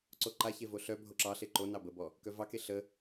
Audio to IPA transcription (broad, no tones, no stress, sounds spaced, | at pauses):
ǀ o ǃ a ç e v o ɬ œ bʱ o ǁ ɑ ɬ e ǃ o n ɑ b ə b ɔ | k œ v ɑ k e ɬ ə